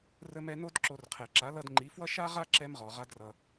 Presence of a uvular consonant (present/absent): present